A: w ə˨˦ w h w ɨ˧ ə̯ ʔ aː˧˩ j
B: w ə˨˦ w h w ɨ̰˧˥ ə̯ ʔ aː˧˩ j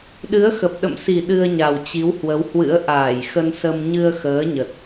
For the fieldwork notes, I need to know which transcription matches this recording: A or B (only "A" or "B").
B